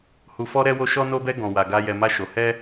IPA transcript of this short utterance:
hu˨fɔ˧ɾɛ˧wo˧ ʃɔ˧no˧bɛ˧ ɡɔ̃˨wa˨ ɡa˧ jɛ˨ma˧ʃo˨ hɛ˧

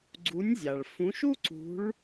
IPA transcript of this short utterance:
ɡ͡ǀu˨˦nʲzʲa˩ɭ fũ˨˦ʃu˥ǀṳ˨˦ɭ

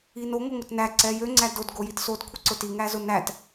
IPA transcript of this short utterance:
ino ŋoŋʊtnæ ǀɛjø ŋ͡ǀædod ɡojitsod kʷʰiǀʊti ŋæzʊnæt

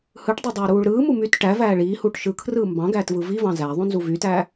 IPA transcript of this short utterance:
hɯʈdˤidˤɑʊ̯ɾuːɭ ɾɯːmu myt ʈævæː ɭiːhuːʈ ʃɯkʰrɯː mbɑ̃ɡæːtvɯ vivɑ̃ zæðˤũnzu vytæː

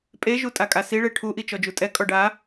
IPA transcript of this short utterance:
pʼeʒu tʼakʼasi ɭeʈʰu ʔit͡ʃɔd͡ʒutʼɛ kʼɔɖa

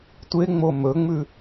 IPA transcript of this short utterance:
tʷeŋ͡mo mɵŋ͡mʉ

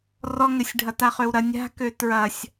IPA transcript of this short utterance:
rɔŋɘsʲɖʱɐ taχøwɾɐ nʲa̤kø tɹɐsʲ

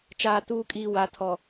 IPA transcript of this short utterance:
t͡ʃaː˨tuː˨kʼiː˨ wa˨tʰɔ˨

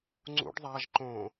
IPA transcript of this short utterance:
ŋ͡ǀṵɖ ðˤaʒ ǃõ

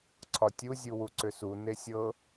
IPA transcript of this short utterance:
ǀʰɒtʲu zʲuwuǀʏsu nesʲɤ

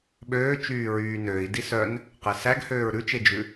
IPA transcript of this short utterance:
ɓøːt͡ʃyː ɹyːnøːi̯ disœn | qesæɡhøːɹ ɾʉt͡ʃed͡ʒʉ

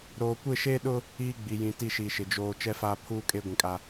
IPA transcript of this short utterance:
ɾoː˨kʷɪ˦˨ʃeː˦ɗʊ˦ | iː˦ɡ͡bi˨jĩ˨ ti˦˨ʃiː˨ʃɪ˨ d͡ʒoː˨ t͡ʃɛ˦faː˦pʰuː˦ kʼe˦ɡʷĩ˨kʼa˦

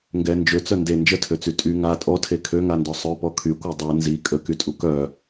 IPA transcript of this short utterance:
ŋɡɛ nd͡ʒøt͡sœ nde nd͡ʒətʰøt͡sy tʼy ŋa tʼɔtʰe kʰøŋandɔ sˤœpɔ kʰykʷœ dˤɛ nzi kʼəkytʼu kœ

